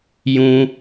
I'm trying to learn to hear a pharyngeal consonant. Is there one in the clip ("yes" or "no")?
no